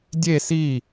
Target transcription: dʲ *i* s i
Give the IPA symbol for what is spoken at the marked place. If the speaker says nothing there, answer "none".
e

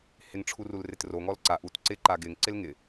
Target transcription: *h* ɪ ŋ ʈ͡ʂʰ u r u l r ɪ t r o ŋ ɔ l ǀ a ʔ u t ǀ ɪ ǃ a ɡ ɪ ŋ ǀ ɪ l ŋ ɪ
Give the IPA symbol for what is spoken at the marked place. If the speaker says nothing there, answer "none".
h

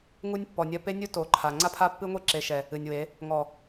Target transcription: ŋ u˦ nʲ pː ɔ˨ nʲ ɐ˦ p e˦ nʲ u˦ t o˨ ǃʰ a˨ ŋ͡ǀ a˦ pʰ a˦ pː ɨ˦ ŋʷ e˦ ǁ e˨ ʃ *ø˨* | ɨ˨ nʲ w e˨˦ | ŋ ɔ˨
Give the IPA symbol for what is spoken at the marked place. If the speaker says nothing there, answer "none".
ɛ˨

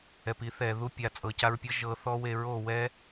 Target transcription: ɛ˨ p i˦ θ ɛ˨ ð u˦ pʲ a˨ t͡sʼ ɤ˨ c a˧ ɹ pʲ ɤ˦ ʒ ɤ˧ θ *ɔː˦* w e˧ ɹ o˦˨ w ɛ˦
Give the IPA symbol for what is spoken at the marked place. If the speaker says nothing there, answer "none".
ɔ˦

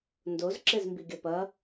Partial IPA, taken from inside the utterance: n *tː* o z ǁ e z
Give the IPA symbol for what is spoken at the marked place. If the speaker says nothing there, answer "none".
d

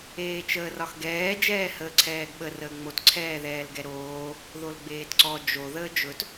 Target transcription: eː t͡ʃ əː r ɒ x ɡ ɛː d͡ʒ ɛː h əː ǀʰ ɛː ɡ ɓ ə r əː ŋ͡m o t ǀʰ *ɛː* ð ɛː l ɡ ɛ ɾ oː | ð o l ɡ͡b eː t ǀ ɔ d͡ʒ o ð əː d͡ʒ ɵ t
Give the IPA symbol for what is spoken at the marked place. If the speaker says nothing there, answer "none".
ɛː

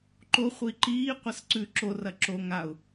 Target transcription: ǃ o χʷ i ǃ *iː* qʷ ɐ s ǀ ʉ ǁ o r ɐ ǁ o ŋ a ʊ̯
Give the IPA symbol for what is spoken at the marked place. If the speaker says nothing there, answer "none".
iː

